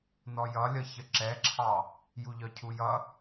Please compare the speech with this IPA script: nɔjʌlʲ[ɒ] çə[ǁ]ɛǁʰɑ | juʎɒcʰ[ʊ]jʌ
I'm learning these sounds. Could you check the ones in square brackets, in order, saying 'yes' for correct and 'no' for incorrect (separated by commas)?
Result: no, yes, no